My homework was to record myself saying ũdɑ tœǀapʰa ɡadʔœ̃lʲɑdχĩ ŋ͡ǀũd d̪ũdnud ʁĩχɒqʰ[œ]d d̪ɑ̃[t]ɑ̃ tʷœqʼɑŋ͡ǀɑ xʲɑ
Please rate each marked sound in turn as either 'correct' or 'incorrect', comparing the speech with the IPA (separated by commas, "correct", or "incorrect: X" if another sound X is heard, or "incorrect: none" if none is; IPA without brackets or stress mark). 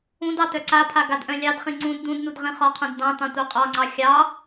incorrect: œ̃, correct